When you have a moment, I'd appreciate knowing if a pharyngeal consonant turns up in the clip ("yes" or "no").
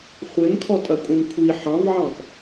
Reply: yes